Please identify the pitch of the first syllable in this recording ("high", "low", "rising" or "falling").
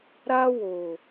high